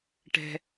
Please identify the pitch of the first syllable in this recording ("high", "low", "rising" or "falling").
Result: high